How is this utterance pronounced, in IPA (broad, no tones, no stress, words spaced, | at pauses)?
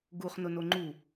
ɡuχ nʊnoŋ͡ǃu